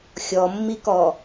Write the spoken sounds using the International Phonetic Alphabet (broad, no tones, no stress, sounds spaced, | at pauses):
xʲ ɔ mː i k ɔ